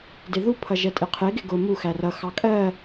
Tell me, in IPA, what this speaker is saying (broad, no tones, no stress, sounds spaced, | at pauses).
d ɪ ð u pʰ ʌ ʒ ɛ tʼ ɪ qʰ ɪ ɡ ɪ ɡ ʊ m u x æ r ʌ x ɑ kʼ ɜ